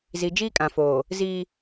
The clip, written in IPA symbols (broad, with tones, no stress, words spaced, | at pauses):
zi˨d͡ʒiː˦kʼã˨foː˨ | ziː˦